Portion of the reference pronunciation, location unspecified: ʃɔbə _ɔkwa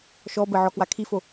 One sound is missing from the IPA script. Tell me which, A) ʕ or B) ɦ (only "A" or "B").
A